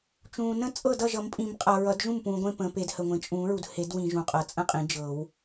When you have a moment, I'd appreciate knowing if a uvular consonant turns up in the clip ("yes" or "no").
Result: yes